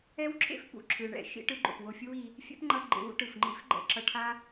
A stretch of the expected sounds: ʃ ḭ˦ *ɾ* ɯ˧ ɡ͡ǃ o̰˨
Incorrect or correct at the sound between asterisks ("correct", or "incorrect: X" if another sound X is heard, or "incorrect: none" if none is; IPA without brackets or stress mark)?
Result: incorrect: ʈ